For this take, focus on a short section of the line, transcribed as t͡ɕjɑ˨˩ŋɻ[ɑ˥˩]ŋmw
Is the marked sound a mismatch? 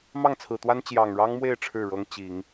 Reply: yes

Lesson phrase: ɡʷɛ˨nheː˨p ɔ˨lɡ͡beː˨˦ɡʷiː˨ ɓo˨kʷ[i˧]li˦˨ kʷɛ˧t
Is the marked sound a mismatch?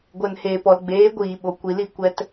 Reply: yes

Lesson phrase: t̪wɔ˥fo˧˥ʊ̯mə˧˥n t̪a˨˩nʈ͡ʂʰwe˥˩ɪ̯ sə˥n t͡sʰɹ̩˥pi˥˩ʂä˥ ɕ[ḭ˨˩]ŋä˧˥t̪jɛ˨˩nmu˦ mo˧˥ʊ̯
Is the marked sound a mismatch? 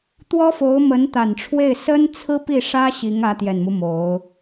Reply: yes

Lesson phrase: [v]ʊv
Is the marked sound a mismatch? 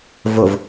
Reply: no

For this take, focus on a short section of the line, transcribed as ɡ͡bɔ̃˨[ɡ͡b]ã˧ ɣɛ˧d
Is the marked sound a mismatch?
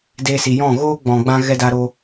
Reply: no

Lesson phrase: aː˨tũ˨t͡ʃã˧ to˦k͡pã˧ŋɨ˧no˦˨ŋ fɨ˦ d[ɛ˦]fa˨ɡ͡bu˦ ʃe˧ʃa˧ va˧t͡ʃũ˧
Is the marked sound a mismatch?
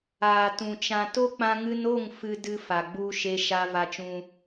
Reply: yes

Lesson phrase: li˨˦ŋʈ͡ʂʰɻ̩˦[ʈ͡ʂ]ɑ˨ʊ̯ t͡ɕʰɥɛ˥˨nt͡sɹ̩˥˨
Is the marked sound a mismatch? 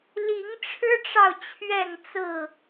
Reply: no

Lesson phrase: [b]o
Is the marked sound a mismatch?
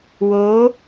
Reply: yes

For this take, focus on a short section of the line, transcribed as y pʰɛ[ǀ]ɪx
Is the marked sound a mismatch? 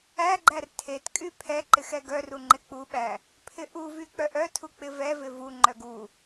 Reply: yes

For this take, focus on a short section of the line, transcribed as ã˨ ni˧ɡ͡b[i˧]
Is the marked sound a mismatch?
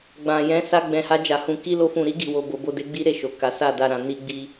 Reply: no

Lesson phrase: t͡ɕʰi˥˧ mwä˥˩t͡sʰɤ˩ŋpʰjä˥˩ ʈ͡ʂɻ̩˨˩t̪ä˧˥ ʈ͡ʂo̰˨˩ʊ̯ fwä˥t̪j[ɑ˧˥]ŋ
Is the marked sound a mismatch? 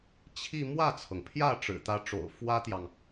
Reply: yes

